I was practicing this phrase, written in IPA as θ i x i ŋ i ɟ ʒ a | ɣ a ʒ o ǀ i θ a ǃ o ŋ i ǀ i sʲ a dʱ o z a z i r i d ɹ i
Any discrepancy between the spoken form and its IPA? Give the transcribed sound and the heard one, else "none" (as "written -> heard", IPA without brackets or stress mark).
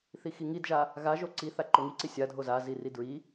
ɟ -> d